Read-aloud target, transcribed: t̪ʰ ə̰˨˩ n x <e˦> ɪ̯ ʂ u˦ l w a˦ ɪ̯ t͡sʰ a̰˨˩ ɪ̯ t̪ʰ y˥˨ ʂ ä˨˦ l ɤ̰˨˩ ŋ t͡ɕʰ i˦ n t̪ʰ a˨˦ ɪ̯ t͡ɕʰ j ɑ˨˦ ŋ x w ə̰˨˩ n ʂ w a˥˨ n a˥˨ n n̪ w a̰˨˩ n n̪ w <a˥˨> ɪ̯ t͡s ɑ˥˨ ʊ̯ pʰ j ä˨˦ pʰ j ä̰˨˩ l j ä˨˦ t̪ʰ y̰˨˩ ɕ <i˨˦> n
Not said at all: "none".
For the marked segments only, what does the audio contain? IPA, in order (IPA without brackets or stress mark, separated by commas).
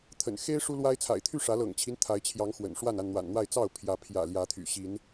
e˦, a˥˨, i˨˦